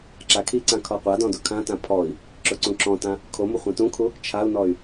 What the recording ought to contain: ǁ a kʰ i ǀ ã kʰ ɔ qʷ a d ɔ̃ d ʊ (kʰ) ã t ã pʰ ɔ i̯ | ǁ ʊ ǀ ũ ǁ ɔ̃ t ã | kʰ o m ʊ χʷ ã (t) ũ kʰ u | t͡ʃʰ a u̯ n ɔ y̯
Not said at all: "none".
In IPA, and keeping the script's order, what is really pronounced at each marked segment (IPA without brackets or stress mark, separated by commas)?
kʰ, t